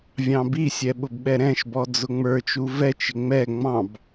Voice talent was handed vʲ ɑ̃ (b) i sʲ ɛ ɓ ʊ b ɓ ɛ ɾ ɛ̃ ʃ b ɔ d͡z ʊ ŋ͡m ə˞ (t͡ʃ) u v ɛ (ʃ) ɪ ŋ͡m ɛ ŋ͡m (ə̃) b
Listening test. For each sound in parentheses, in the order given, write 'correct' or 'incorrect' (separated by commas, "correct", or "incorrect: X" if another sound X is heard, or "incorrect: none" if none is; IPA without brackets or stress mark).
correct, correct, incorrect: t͡ʃ, incorrect: ɑ̃